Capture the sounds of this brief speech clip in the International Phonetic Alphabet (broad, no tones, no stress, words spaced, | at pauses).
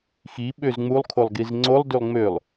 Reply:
xi ɓøzŋ͡mulˠ kʰolˠɡizŋ͡ǀolˠ dylˠŋ͡mølˠ